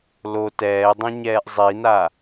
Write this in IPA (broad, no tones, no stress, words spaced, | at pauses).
lo tɛːdˤĩɲɛːʔ zˤina